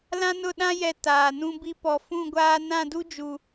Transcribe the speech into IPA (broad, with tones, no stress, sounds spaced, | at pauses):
l ã˦ n ʊ˦˨ ɗ ã˦ j ɛ˨ t aː˨ n ũ˦ b i˦ p ɔ˨ f ũ˦˨ ɡʷ aː˦ n ã˦˨ d u˦ d͡ʒ u˨